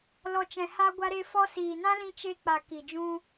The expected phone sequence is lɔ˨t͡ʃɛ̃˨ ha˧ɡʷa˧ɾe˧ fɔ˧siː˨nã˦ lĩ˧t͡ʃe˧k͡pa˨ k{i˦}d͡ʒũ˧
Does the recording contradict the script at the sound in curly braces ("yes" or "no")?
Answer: yes